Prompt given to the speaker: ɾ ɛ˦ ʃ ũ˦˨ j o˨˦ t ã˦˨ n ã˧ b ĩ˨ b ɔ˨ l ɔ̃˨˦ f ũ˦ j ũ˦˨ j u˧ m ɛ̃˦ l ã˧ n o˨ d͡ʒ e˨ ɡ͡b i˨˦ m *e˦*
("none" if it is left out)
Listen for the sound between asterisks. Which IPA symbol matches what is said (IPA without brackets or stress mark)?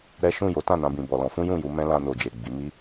i˦